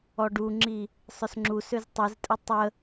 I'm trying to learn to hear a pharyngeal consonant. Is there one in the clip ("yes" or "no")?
no